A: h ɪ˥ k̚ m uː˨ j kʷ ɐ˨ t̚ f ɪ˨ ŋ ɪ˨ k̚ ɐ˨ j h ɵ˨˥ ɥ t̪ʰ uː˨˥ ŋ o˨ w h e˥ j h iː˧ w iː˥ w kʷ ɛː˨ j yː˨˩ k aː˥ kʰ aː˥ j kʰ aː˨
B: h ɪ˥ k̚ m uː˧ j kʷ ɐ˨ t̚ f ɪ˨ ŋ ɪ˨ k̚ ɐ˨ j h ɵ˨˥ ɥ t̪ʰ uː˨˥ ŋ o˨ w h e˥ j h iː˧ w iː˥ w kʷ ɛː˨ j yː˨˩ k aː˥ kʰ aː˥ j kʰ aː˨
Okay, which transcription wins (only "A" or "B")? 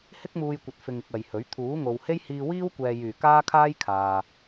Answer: B